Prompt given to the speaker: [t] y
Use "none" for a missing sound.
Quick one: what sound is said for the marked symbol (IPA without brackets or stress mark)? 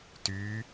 t